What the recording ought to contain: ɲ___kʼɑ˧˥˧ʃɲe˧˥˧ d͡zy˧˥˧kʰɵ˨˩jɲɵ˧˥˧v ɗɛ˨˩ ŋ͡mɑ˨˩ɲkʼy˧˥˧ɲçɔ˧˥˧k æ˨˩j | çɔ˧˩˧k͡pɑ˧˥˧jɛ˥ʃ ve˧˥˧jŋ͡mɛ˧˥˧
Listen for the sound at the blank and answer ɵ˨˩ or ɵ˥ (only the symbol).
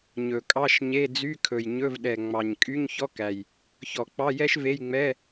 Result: ɵ˨˩